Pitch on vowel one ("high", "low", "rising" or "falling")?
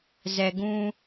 low